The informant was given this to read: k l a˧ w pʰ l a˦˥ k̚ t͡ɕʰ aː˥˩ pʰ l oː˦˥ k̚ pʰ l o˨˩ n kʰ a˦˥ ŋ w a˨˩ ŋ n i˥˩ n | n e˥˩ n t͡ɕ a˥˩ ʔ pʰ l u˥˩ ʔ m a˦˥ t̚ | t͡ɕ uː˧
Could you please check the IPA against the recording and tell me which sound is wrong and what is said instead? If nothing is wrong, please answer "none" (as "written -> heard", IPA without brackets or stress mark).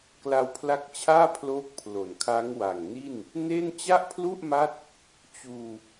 none